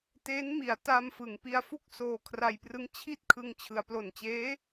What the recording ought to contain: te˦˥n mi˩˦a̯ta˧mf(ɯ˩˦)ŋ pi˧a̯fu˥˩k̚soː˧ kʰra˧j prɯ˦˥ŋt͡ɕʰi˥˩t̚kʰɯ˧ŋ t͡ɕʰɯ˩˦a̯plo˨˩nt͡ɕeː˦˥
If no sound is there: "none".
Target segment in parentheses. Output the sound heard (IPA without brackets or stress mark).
ɯ˩˦